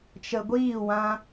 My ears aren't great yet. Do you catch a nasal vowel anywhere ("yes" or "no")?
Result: yes